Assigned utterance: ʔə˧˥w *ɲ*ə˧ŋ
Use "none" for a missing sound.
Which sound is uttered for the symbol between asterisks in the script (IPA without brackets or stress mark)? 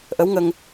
ŋ